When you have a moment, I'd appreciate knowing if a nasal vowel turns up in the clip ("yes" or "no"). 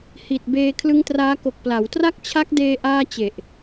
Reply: no